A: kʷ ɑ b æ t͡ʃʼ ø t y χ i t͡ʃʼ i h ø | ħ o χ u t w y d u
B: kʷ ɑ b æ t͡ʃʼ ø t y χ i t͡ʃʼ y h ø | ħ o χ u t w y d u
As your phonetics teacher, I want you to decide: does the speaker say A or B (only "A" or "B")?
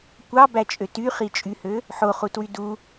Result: B